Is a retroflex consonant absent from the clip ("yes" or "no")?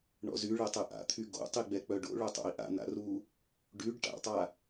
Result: no